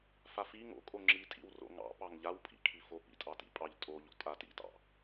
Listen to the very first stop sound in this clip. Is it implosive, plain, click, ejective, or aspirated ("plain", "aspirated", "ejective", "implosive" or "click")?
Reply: ejective